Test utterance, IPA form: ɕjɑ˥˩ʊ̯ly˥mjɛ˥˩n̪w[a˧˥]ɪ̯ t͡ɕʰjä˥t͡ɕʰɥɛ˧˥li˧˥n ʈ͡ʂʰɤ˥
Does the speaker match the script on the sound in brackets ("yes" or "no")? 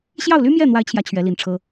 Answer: yes